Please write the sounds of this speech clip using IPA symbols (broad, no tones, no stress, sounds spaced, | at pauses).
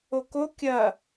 o k o kʲ ɐ